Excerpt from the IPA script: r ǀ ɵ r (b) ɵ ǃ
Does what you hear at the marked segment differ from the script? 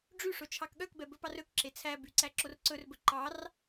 no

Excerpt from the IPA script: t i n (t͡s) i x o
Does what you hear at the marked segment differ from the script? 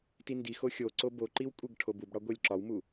yes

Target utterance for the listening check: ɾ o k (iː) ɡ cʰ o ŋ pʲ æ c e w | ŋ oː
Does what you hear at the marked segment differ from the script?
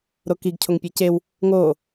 yes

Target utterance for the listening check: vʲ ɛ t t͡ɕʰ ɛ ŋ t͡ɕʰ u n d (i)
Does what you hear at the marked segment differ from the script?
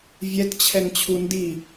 no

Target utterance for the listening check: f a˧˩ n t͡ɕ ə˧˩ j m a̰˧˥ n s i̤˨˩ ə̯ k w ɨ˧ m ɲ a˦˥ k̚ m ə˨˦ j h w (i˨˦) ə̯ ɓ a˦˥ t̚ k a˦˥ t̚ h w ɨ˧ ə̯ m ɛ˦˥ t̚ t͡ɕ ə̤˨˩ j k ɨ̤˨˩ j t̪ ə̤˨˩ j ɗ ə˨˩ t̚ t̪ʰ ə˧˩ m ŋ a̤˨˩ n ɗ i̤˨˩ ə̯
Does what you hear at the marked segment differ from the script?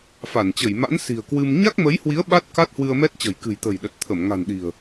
no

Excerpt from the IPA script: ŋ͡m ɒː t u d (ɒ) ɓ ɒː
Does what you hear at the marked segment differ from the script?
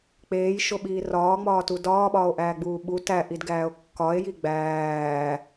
yes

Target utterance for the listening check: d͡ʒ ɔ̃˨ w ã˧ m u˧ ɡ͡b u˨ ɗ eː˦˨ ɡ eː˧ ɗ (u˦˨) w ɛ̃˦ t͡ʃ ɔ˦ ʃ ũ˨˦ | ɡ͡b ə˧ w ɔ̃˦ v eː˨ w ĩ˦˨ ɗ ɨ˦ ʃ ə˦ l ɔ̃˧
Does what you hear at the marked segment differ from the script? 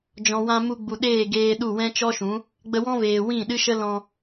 no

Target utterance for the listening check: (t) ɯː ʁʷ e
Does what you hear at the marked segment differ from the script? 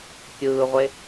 yes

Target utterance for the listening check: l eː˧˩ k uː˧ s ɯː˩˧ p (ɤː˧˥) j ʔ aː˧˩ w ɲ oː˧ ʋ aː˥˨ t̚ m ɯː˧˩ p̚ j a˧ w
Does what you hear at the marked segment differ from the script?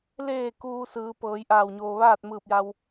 yes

